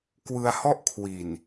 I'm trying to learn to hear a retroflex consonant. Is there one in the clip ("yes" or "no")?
no